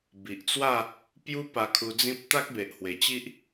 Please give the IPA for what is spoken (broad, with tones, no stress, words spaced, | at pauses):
bi˨ʔt͡swa˥˧ | pju˦ pa˧kʰu˧d͡zĩ˦p̚ t̪a˦k̚be˨ʔhwe˨˩t͡ɕi˦ʔ